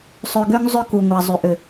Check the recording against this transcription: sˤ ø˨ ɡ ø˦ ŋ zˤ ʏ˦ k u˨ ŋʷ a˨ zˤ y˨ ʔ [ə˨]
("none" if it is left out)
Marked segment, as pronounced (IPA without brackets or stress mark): ʏ˨